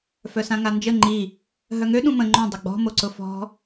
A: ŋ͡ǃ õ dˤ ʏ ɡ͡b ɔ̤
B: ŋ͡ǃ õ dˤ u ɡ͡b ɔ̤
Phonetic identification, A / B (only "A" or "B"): A